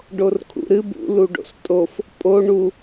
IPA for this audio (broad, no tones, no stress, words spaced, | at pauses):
ɖorkʰṵɾɨb ṵ luɖo̰stʼof | pʼo ɳu